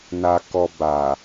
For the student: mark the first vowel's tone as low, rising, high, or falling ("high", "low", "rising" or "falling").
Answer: low